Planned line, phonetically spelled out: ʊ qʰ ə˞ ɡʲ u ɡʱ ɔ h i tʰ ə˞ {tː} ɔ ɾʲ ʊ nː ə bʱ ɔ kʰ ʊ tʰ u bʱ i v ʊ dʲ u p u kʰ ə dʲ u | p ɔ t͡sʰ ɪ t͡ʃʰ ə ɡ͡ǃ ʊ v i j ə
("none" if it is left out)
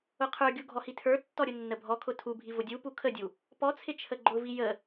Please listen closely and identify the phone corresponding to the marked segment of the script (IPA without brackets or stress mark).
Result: tː